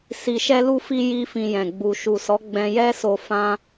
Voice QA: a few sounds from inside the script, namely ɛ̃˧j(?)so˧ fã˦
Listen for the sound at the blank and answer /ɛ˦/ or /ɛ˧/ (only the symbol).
ɛ˦